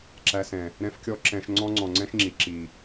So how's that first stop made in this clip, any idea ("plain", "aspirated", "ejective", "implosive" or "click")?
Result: click